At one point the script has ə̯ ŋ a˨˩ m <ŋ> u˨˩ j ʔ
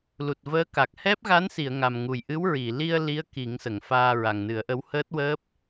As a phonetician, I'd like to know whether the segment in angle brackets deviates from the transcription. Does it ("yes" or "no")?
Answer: no